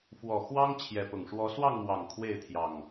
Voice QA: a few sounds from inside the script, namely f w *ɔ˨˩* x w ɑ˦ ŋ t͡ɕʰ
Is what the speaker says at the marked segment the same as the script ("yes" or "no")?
yes